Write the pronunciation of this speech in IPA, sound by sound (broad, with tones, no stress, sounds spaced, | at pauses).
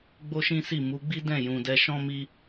ɡ͡b o˦ ʃ ĩ˦ s i˦˨ m u˨˦ ɡ͡b i˦ d ɛ̃˦˨ j ũ˨ d ɛ˧ ʃ ɔ̃˧ m i˧